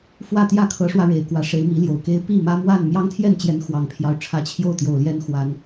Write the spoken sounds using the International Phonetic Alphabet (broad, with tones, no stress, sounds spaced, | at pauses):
f w ä˥˨ t̪ j ä˥˨ kʰ ɤ˨˦ ʂ w ä˧ ɻ e˨˩ ɪ̯ k w ä˨˦ ʂ e˨˦ ɪ̯ m i˨˦ l j o˨˩ ʊ̯ k e˦ ɪ̯ p i˥˨ m ä˦ m w a˥˨ n m j ɑ˦ ŋ t̪ʰ j ɛ˥˨ n t͡ɕ j ɛ˨˦ n x w ɑ˨˩ ŋ pʰ j ɑ˦ ʊ̯ ʈ͡ʂʰ ä˨˦ t͡ɕʰ j o˥˨ ʊ̯ t̪ j o˨˩ ʊ̯ l j ɛ˦ n x w a˨˦ n